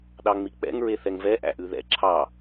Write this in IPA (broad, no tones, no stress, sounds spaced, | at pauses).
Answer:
ɗ ɑ ŋ͡m i k͡p ɛ̰ ŋ ɹ e θ ɛ ŋ v ɛ ʔ æ̰ ʔ ʉ ð ɛ̰ ǁʰ ɑ